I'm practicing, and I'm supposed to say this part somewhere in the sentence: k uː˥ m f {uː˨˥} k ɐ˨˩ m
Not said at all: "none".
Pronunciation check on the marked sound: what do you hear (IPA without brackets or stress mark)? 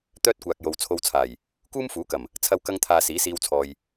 uː˨˥